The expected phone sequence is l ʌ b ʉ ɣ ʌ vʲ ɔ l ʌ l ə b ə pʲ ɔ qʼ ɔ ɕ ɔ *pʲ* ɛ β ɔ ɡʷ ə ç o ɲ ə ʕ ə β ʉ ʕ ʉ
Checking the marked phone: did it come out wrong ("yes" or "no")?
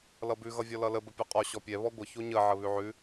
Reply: no